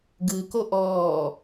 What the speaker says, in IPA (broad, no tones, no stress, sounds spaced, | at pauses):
ɡ ɯ k o ʔ ɔː